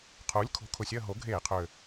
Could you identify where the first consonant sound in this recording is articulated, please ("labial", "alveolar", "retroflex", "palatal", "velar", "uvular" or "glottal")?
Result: uvular